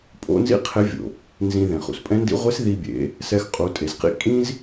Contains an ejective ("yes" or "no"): yes